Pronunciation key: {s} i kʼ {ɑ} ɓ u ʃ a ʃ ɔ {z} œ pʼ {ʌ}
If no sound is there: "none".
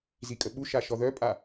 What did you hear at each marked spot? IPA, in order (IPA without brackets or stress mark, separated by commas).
z, ə, ð, a